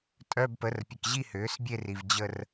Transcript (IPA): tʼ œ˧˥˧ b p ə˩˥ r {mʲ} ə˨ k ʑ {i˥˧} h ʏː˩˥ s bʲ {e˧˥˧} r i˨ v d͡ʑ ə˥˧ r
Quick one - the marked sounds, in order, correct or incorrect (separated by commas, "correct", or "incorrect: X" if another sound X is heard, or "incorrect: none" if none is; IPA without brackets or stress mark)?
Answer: incorrect: pʲ, correct, incorrect: e˥˧